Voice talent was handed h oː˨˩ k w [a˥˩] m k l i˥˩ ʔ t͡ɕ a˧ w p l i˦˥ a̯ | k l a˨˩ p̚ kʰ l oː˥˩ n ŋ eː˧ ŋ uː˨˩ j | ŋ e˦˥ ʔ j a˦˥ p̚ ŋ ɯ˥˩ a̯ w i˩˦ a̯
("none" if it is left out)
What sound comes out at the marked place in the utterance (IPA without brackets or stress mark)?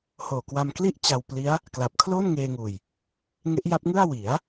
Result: a˧